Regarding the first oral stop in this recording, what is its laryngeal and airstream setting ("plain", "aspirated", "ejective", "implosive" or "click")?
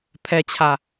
aspirated